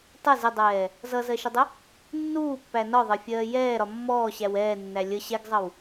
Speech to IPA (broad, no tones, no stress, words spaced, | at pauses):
tˤɜz ɪdˤɛː | zʌzɜʃədˤə | nːuːpːæ nɒðˤɜfʲɜː jɛːɾɒ mːɔːɕæw ɛːnːæ lʲə ɕɛɡzˤʌw